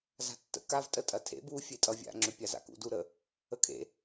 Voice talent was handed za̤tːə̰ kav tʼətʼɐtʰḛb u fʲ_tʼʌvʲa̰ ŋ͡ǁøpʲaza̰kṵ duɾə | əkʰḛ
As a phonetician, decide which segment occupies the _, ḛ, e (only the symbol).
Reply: e